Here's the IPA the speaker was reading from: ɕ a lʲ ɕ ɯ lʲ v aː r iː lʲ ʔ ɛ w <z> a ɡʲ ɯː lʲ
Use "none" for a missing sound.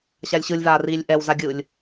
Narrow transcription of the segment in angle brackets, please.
z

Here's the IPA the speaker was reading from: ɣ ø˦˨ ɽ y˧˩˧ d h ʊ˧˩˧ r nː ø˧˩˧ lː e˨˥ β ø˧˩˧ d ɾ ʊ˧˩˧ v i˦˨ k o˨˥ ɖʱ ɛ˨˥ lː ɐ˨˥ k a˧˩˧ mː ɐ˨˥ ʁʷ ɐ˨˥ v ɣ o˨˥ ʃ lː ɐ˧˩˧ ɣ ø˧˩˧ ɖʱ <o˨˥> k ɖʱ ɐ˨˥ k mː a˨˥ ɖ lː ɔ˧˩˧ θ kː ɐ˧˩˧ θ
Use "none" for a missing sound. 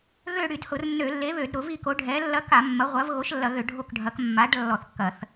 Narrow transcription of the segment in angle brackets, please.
o˦˨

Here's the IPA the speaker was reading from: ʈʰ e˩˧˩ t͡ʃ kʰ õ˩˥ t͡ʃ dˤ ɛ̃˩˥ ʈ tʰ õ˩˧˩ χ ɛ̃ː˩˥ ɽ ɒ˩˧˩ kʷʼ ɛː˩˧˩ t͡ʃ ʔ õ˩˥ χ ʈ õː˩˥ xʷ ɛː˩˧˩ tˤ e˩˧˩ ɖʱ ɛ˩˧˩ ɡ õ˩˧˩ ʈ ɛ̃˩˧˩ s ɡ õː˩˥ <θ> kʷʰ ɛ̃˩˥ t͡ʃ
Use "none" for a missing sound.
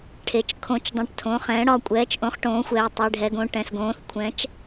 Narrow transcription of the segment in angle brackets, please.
θ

